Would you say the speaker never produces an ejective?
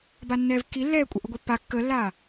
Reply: no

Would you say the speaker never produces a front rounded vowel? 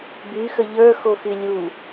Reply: no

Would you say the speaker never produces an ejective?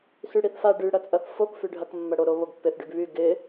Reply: no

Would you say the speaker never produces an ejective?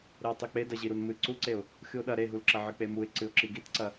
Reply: yes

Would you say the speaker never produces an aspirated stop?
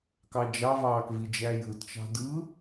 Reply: yes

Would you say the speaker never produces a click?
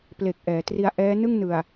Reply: yes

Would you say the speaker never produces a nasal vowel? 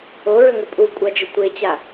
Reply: yes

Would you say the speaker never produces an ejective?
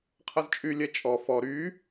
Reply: no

